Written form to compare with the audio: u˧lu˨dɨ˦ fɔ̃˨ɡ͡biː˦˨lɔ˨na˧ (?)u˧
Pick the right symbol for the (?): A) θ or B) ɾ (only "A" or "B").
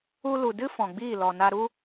B